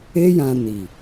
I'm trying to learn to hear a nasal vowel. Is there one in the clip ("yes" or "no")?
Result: yes